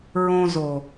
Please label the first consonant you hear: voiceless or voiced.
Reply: voiced